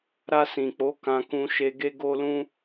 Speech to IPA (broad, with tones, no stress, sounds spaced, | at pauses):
ɾ a˧ s ĩ˨ k͡p o˨˦ k ã˧ k ũ˧ ʃ e˧ ɡ e˦ ɡ o˦ l ũ˦